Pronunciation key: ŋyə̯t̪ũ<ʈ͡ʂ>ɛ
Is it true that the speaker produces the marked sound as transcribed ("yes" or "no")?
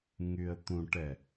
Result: no